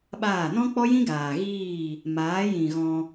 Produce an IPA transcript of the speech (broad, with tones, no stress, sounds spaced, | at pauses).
ɓ aː˦˨ n ɔ̃˦ k͡p ɔ˦ j ĩ˦ ɡ aː˨ ɣ iː˦˨ | m aː˨˦ j ĩ˨ ɣ ɔ̃˧